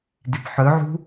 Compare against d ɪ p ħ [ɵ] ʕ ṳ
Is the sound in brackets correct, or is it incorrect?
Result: correct